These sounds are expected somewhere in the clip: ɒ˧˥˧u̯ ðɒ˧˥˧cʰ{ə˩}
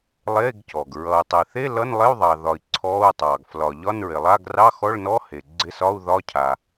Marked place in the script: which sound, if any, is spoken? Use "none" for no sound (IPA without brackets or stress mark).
a˩